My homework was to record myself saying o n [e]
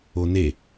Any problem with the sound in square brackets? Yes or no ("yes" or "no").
no